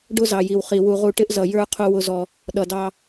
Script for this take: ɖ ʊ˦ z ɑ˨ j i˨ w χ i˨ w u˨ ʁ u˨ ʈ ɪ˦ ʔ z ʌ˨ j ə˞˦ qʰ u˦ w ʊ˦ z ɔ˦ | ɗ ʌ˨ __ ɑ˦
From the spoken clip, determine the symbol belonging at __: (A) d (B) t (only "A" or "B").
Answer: A